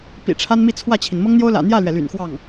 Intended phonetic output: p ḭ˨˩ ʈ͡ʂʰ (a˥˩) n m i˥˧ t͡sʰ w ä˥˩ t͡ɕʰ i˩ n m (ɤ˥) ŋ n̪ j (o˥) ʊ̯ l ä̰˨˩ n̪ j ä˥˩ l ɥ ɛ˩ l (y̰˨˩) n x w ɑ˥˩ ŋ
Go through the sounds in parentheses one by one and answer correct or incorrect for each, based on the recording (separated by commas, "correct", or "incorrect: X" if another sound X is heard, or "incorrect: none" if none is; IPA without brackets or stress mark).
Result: incorrect: a˥, correct, correct, correct